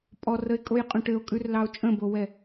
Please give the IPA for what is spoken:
pʼɔrəe̯kʼojqʼõ ʈɘo̯kʼʉrlɑo̯ t͡ʃʼə̃bowɛ

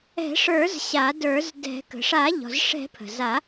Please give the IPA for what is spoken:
ɛ̤˨˩˦ʂə˞˨˩˦z ɕa˨˩˦də˞˨˩˦zdɛ̤˨˩˦ kə̤˩ʂa˨˩˦ʎɔ̤˩zʂɛ̤˨˩˦ pʰə̤˩za˨˩˦

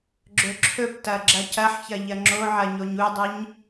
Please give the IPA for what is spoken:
ɡ͡ǁɵǁʰɵptɐ ɡ͡ǁɐcɐħçɐ ʎɐŋ͡ǁoʕɐ ɲoɲudˤɨɲ

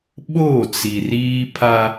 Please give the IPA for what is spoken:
ɓo˦˨t͡si˨ riː˦pʰa˦

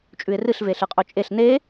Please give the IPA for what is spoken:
t͡ʃʼʉɪ̯rɨɬve ɬɨqʼɵt͡ʃʼeɬ ne

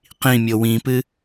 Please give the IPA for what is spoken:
qĩmʲo wĩpɨ

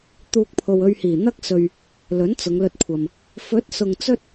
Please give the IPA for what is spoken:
t̪uː˧k̚pʰo˨wɵ˧ɥhiː˨˩ n̪ɐ˥k̚sɵ˨ɥ | lɵ˨˥nt͡sʊ˨˧ŋlɵ˧t̚kʷʰɐ˨m | fɵ˨˥t̚sʊ˨ŋ t͡sɵ˥t̚

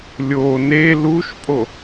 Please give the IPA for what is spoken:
lʲo ne luʃpʼo

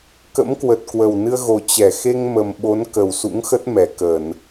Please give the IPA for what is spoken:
kə̰˧˥mkwə˨˩t̚kwə˨˩w nɨ˧ə̯ɣo˨˩ t͡ɕɛ˧˩ xe˧ŋ mə˨˩mɓo˨˦n kə˨˩wsṵ˧˥ŋxə˦˥t̚ mɛ˧˩kə˧˩˨n

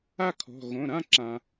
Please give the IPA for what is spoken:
a˥˧kʰɔ̤˩˧˩ ɣõ˩˧˩ɾã˥˧ǁã˩

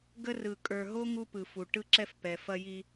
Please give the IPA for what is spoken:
ɡə˦rɯ˨ kʼə˞˨ɦo˦ ŋu˦pɯ˨fu˨ ʈɯ˦ǁɛ˦f pɛ˨fɐ˦ji˦

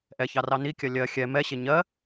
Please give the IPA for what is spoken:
ʔɛçɑrɑ nikʲɜ lʲɜ xʲɛ mɛɕe ɲɜ

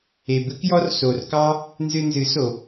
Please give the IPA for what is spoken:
e˨bɨ˦kjɔ˦r so˨rkɑ˦ | nzɨ˧nzɨ˨˦so˨

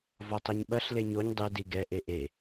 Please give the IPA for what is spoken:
vɔtˤiɲɓɐɬ leɲoɲ dˤe diɡɛ ʔeʔe

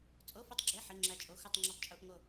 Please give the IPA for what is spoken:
t͡sʼo˧˥˧fu˦˨tˤɡ͡ǁe˧˥˧ ħi˧˥˧ŋ͡ǁæ˦˨t͡ʃʼo˧˥˧ xu˦˨tˤŋ͡ǁɒ˦˨tˤt͡ʃʼu˧˥˧ʔŋo˦˨

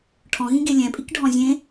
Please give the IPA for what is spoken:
ʈʰɔ̃ɣĩɡe lʲɛ̃pʼikɖʱɔ̃ zʲẽ

